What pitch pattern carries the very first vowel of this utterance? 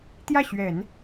falling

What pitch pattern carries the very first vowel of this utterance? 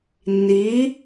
rising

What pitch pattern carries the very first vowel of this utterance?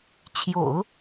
low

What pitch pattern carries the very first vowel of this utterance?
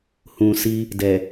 low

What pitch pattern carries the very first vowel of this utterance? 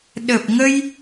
low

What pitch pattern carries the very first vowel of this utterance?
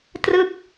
falling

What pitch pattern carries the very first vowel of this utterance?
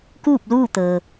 falling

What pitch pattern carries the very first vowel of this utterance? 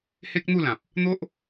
high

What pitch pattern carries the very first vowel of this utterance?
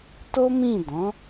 high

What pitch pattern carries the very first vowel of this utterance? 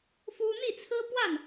high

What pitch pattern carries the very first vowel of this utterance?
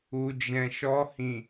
low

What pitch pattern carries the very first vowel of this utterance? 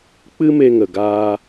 high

